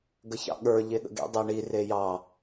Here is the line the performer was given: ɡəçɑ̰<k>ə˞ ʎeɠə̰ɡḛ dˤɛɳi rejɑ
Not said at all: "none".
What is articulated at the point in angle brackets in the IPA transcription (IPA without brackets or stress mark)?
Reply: ɠ